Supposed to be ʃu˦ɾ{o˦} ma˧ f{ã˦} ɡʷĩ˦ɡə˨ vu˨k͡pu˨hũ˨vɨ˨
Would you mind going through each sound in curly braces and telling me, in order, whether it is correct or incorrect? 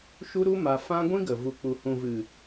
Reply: incorrect, correct

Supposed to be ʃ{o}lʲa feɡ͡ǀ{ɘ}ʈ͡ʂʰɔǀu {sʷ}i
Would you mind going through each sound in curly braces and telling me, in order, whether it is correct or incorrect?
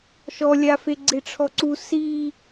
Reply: incorrect, incorrect, incorrect

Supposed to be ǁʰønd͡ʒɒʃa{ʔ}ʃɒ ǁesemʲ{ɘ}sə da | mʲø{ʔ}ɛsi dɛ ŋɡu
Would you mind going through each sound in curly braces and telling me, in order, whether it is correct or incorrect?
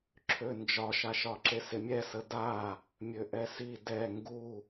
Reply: incorrect, incorrect, correct

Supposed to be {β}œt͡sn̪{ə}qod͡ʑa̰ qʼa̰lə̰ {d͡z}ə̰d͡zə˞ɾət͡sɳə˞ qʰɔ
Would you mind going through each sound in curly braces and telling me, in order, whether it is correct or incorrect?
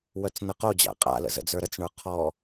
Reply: incorrect, correct, incorrect

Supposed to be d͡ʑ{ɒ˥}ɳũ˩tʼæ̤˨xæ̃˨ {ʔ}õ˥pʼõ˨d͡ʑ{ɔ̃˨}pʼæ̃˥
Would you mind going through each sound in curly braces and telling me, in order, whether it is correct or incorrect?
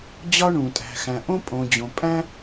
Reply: correct, correct, incorrect

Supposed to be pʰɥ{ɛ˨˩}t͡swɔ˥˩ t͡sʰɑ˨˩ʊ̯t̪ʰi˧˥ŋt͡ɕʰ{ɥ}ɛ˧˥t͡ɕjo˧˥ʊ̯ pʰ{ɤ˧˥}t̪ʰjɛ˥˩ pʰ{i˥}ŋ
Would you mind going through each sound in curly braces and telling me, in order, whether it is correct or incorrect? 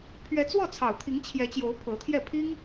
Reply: incorrect, incorrect, correct, correct

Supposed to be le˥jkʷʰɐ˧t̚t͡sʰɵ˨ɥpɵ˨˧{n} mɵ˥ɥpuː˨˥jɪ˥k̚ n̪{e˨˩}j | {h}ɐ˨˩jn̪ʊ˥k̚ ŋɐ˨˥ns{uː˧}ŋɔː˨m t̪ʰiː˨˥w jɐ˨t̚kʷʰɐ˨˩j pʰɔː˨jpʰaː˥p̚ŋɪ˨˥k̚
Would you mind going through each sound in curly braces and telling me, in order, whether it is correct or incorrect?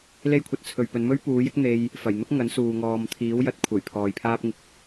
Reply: correct, incorrect, incorrect, incorrect

